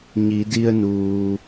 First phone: ɲ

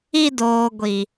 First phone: i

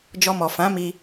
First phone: d͡ʒ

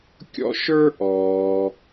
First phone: kʲ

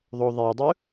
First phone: ðˤ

